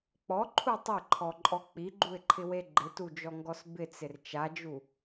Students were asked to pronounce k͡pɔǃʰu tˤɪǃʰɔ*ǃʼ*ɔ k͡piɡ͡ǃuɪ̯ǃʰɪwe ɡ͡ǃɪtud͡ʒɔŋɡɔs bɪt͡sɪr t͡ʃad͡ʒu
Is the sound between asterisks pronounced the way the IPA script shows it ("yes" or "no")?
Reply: yes